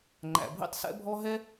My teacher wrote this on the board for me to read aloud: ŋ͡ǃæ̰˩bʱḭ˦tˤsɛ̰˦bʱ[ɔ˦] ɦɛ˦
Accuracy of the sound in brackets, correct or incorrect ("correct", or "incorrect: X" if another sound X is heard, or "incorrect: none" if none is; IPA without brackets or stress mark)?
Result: correct